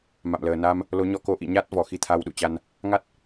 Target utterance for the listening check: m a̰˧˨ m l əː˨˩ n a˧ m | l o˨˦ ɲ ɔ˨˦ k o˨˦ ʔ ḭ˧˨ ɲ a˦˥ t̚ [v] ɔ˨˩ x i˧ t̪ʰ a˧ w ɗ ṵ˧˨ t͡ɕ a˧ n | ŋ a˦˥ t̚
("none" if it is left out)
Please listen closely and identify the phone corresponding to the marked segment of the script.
v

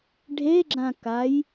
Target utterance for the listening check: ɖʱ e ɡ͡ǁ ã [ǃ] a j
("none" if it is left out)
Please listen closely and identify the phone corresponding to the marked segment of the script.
k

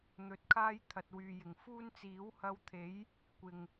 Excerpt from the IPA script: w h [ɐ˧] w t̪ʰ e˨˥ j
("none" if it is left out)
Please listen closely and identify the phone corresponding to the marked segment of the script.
ɐ˧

